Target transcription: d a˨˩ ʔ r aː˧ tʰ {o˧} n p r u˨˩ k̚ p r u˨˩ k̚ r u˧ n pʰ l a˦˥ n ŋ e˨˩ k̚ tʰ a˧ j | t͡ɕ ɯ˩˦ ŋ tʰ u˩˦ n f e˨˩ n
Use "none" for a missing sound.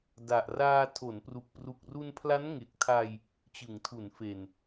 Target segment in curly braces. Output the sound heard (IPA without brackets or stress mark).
o˩˦